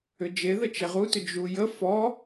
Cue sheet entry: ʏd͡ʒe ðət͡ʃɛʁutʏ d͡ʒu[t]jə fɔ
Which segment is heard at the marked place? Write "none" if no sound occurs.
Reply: none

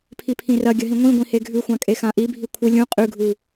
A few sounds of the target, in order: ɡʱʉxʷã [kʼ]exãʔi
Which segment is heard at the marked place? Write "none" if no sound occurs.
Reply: kʼ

